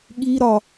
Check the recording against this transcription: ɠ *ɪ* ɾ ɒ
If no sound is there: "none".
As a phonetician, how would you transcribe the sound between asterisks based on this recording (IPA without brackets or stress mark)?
i